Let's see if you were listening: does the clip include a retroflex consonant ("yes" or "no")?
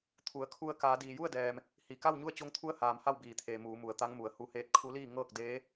no